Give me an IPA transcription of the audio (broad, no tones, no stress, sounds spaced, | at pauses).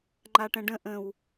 ŋ͡ǃ a ʈ ɛ̃ ɖ ə̃ ʔ ə̃ w